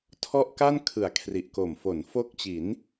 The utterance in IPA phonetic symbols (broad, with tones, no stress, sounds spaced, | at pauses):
tʰ ɔ˥˩ ʔ k a˥˩ n kʰ ɯ˩˦ a̯ kʰ r i˨˩ ʔ k o˨˩ m f o˩˦ n f o˦˥ k̚ t͡ɕ i˩˦ n